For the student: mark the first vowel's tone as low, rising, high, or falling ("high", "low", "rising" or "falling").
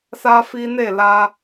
high